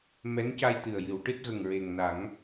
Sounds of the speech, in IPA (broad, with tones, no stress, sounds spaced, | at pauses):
m ɛ˧˥ n c a˧ j t̪ ɨ˨˩ ə̯ j ɨ˨˩˦ w ʈ ɨ˦˥ t̚ ɣ ə˨˩ ŋ ɹ e˨˩ ŋ n a˨˩˦ ŋ